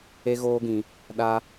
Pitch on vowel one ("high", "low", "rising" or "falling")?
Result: high